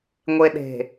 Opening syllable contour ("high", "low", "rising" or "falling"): low